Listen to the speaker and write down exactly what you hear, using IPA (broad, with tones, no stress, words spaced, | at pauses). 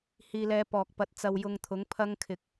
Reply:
hiː˧lɛː˧pɔː˨k̚pɐ˨˥t̚ t͡sɐ˧wjʊ˧ŋt̪ʰʊ˨˥ŋpʰɐ˥ŋ kʰɪ˧k̚